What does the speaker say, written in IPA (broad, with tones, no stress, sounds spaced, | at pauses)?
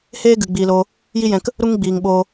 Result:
h eː˦ ɡ ɨ˨ ɡ͡b iː˨ l oː˧ | j i˦ j ɛ̃˧ k | ɾ u˦ ŋ ɡ͡b iː˨ ŋ ɓ oː˧